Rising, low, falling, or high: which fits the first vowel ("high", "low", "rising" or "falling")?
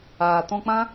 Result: low